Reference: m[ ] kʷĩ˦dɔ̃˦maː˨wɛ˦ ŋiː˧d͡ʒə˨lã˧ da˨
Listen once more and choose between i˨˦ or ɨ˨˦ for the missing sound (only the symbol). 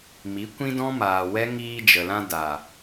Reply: i˨˦